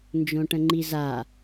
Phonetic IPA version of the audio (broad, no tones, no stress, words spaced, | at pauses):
nd͡ʒõʈə̃ŋ͡ǃiza